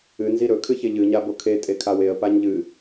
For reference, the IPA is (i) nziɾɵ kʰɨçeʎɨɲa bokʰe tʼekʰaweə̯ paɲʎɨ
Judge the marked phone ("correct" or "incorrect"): incorrect